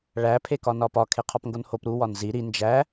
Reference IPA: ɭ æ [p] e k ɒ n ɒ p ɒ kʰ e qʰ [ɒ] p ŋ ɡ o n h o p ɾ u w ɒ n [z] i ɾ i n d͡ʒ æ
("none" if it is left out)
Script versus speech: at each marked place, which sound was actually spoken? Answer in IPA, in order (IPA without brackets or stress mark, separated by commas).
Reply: pʰ, ɒ, z